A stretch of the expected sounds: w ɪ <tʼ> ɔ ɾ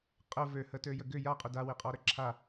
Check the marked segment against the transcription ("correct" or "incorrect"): incorrect